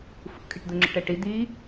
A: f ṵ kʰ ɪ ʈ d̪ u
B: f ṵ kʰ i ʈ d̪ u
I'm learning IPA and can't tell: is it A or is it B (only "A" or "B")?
B